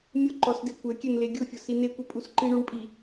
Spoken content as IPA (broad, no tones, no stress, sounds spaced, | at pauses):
mʲ ʊ ǃ ɔ s d e kʷ ɛ kʲ ɛ n l e ɡʲ ʊ fʲ ʊ s i n e kʷ e pʼ u s ǃ i ɳ u ɳ pʼ i